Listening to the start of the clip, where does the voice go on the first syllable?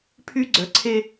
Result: high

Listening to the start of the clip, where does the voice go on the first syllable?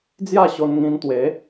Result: falling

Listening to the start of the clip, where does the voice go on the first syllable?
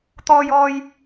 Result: high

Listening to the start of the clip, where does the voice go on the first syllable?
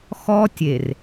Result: high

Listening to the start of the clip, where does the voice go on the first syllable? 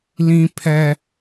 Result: high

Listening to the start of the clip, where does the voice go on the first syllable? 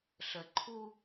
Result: low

